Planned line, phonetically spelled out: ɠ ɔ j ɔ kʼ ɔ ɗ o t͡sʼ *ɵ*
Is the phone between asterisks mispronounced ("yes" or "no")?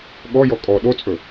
no